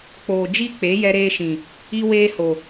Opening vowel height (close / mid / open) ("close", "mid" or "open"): mid